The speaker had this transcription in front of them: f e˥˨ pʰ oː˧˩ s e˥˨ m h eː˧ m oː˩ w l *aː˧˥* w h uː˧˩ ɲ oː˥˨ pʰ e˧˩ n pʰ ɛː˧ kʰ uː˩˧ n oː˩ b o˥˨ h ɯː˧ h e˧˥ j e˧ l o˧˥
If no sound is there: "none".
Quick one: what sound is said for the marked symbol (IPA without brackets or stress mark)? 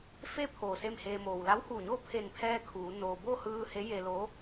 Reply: a˧˥